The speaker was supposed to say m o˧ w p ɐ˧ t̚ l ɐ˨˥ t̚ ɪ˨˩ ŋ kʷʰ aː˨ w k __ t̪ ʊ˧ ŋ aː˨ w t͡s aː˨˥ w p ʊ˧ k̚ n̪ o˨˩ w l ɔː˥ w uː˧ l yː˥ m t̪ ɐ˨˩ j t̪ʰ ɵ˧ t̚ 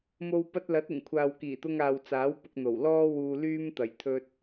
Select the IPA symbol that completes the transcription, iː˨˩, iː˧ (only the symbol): iː˨˩